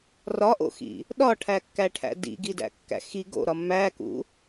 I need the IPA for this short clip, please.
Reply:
r ɒ ʔ o̰ x ḭ | ɗ ɒ ʈʰ æ kː æ ʈʰ æ̰ d ḭ ɡ i d æ̰ kː æ̰ x i ɡ o̰ ɾ ɒ mː æ k ṵ

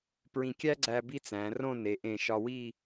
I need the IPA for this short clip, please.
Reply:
p ɹ ĩ˧˩ kʲ æ˥ ɡ͡ǀ æ˧ b i˥ t͡s æ̃˩˧ r õ˥˧ n e˩˧ ʔ ẽ˧˩ ʃ ɒ˧ w i˥˧

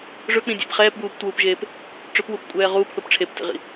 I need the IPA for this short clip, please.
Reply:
ʐ ɵ k͡p ĩ dʲ ḛ p χ ɛː p b uː p t w uː p ʒ eː p | ʈ͡ʂ ɵ p w u p kʷʼ ɛː ʁ uː p θ o p ʈ͡ʂʰ e p t ḭ ʁ ḭ

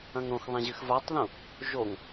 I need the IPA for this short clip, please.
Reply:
ɐ̃ ŋ ɾ õ x ðˤ ɛ̃ ʑ ɨ x v a tˤ ð ũ | ʒ o ŋ

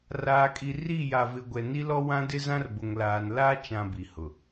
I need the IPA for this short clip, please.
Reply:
r aː˨ kʼ i˨ r i˦˨ j a˨ v ɪ˨ ɡʷ ɛ˨ n i˦ l ɔ˦ w ã˦ d ɪ˦ z ã˦ r b ʊ˨ ŋ l aː˨ n l a˦ t͡ʃ ã˦ b i˨ h ʊ˨

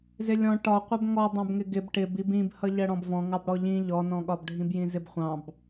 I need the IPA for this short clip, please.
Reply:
z ɪ lʲ ɔ̃ ʈ ɒ qʷ ʌ b ŋ ɔ dˤ ɑ̃ b ŋ ɪ ɡ ɪ b ʈ ɪ b i b ĩ b h ʌ ʎ ɜ ɽ ɔ̃ b v ɔ̃ ŋ ɑ b ɽ ɔ ʎ ĩ ʎ ɔ n ɔ̃ ɠ ɒ b ɖʱ ĩ b j ĩ z ɪ b χʷ ɑ̃ b

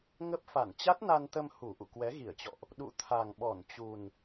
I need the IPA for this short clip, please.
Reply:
ŋ ə˦˥ p̚ f a˧˩ n t͡ɕ a˦˥ t̚ n a˧ n t̪ ə˧ m h u˧˩ ʔ ṵ˧˨ k w ɛ˨˦ ɣ i˧˩ ə̯ t͡ɕ ɔ̰˧˨ ʔ | ɗ ṵ˧˨ t̪ʰ a˨˩ ŋ ɓ ɔ˧˩ n t͡ɕ u˨˩ n

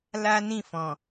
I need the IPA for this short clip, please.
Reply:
l a˦ n ĩ˦˨ f ɔ̃˨

